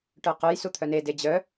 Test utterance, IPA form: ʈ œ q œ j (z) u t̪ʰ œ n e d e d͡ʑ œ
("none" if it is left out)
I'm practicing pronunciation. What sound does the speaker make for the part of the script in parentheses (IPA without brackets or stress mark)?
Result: s